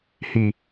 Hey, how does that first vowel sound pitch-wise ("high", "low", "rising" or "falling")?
low